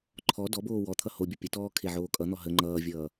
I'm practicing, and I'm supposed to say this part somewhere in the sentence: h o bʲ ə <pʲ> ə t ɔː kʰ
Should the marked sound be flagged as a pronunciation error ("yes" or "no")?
no